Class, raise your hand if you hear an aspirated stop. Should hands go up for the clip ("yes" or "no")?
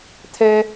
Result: yes